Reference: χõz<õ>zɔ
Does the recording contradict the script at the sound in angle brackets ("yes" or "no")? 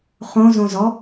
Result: no